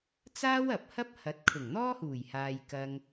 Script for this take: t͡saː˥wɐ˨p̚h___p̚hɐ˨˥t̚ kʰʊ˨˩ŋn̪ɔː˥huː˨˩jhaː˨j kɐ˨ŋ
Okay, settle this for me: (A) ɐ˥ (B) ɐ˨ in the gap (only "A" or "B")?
A